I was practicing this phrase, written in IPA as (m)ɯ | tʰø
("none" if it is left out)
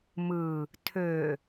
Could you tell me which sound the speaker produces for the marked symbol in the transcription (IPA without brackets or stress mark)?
m